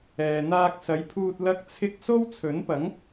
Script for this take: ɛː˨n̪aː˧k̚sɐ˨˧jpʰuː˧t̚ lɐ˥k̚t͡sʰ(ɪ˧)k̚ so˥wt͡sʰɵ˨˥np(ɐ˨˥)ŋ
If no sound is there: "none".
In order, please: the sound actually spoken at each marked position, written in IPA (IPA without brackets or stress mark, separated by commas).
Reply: ɪ˥, ɐ˨˥